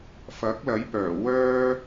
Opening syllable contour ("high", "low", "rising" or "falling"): rising